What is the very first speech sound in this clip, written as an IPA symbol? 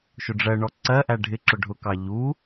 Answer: ʃ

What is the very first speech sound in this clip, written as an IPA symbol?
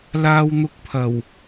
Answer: l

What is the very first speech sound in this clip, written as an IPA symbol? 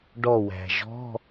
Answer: ɖ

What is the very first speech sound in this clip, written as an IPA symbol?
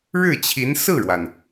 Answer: ɻ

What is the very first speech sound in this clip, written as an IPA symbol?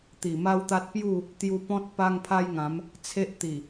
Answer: t̪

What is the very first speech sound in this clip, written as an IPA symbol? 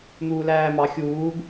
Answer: n̪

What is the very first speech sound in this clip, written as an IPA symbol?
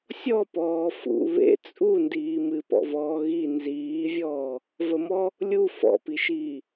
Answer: sʲ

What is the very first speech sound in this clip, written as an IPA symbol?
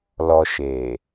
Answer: l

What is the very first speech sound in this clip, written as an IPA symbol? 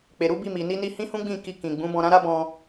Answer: k͡p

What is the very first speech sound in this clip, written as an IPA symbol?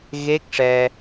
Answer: ɣ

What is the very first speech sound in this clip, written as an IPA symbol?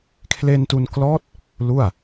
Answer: kʰ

